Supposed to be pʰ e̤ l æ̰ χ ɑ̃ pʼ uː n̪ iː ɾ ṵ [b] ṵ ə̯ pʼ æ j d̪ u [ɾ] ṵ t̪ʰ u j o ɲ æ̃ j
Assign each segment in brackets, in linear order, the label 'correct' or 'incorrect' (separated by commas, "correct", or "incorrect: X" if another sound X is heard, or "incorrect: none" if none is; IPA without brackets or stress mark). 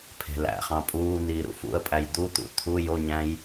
incorrect: f, incorrect: t̪